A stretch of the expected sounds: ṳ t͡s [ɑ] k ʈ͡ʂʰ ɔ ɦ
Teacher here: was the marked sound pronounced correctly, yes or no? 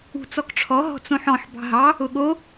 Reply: no